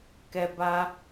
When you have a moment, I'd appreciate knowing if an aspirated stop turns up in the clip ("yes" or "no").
no